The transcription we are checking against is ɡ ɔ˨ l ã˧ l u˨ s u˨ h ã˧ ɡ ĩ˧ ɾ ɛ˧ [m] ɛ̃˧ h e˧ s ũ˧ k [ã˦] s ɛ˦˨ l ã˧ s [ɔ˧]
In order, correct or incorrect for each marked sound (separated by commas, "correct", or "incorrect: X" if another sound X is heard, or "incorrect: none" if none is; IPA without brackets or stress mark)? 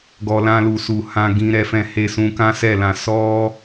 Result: incorrect: f, correct, incorrect: ɔ˦